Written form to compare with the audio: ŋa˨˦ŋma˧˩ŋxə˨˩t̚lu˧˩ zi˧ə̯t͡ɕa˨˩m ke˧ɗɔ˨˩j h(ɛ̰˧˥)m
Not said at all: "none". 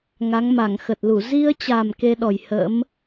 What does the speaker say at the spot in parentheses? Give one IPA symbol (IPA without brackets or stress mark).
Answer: ə̰˧˥